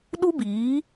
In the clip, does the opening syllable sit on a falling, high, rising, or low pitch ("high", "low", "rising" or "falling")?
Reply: high